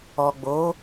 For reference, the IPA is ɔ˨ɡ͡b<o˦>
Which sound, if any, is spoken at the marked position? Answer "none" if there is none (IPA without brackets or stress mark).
o˨˦